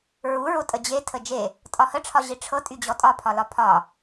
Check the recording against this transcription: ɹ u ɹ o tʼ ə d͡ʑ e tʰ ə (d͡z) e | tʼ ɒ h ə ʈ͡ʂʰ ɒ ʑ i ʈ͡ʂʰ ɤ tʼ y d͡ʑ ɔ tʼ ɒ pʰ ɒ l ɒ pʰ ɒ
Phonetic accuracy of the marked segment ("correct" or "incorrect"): incorrect